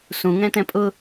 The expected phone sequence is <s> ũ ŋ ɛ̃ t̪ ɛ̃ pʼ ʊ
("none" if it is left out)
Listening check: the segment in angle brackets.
s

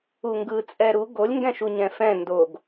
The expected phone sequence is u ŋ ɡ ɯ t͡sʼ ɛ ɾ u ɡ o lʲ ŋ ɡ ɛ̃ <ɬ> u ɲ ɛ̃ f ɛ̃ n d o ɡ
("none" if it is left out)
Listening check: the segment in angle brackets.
ʃ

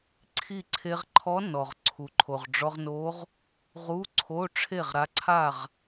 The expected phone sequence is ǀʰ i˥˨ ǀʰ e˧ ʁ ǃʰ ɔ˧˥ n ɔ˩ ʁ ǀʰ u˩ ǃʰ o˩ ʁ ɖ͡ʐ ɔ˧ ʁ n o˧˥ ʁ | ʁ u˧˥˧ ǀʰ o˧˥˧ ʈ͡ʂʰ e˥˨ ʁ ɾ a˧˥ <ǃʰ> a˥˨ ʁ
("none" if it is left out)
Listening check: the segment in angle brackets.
ǀʰ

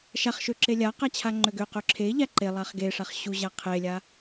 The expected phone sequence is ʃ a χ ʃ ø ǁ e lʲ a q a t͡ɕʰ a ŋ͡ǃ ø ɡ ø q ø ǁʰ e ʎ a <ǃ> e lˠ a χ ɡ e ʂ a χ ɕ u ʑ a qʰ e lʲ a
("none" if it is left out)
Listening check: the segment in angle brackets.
ǃ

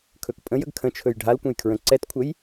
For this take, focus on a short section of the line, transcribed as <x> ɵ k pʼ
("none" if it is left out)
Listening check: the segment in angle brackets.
kʰ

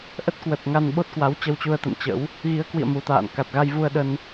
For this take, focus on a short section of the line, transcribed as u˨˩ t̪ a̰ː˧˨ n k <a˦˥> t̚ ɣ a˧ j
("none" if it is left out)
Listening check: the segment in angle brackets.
a˨˩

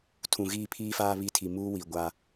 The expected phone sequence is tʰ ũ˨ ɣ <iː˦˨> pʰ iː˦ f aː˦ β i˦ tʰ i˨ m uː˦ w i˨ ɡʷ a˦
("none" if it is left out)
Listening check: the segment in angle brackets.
iː˦˨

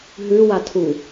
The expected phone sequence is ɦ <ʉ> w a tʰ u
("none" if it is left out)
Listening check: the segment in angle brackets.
ʉ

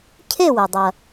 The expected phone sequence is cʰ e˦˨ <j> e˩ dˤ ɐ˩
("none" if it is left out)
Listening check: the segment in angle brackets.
w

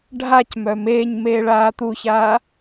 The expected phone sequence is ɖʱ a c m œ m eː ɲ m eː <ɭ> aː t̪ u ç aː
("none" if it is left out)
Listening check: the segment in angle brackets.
ɭ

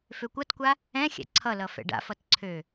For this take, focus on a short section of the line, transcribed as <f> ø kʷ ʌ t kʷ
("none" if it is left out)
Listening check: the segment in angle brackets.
f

